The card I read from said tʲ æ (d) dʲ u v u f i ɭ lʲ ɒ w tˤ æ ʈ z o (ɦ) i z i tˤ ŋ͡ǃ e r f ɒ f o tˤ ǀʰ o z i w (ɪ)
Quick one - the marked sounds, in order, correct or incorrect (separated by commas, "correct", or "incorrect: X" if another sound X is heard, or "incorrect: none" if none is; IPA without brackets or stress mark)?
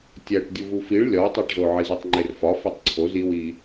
incorrect: ʈ, incorrect: ʕ, incorrect: i